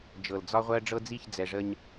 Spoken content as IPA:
d͡ʒɤ˨ld͡zɒ˦ʁʷɜ˦ ɖ͡ʐɤ˦d͡zi˦˨çd͡zɛ˨ʐə˦ɲ

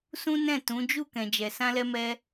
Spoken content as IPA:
sũ˦nɛ̃˦˨tũ˨˦ d͡ʒu˦˨ kɛ̃˨d͡ʒɛ˨ sã˧lɛ˧mɛ˧

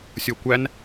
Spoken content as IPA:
sʲokʷæn

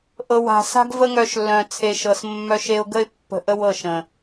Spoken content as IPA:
ʔɤ˨wa̤˨sa̤˦ɡ və˦ŋœ˧ʃ lːœ̃˨t͡sʰe˨ʃɤ˨s mːœ˧ʃe˧ʊ̯ɡə˦ɪ̯pːə̤˧ ʔə˦wɤ˦˨ʃə̃˨

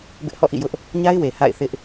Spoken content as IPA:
bɪ˦ʔhɔ̰˦˨ʔḭ˦˨jʊ˦ʔ | ɲa˦ɪ̯we˨ ha̰˦˨ɪ̯ θɪ˦ʔ

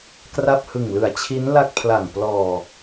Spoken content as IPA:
kra˥˩p̚hɯ˨˩ŋlɯ˨˩a̯t͡ɕʰi˦˥n la˥˩k̚pʰla˨˩ŋ plɔː˨˩

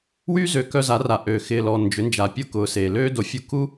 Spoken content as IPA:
wyː˦zø˨ kœ˧za˨˦ra˨ ʔøː˨ xɪː˨lɔ˨ nd͡ʒʏ˨˦nd͡ʒa˨ pʲʊ˦kʊː˨seː˨ løː˦do˨fʲu˧ ku˦

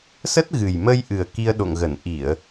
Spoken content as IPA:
sə˦˥t̚ɣɨ˨˩jmə˧jʔɨ˨˩ə̯ ki˧ə̯ɗo̰˧˨ŋɣə˧˩n ʔi˧˩˨ə̯

